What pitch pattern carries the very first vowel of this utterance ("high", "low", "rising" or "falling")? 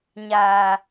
low